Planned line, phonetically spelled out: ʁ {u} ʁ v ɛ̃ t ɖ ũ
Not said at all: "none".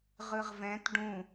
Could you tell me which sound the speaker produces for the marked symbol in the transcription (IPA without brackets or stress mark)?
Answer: ɯ